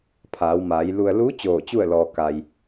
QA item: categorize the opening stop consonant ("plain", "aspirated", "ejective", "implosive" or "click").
aspirated